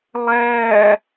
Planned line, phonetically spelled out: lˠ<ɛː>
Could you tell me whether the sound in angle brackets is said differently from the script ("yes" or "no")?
yes